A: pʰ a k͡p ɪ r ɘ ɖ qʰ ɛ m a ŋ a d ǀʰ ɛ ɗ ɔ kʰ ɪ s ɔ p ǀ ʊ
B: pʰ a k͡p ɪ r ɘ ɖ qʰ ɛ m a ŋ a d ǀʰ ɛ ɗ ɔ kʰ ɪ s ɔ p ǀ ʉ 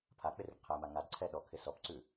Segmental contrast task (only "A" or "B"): B